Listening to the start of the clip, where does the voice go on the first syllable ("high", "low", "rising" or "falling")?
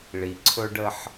low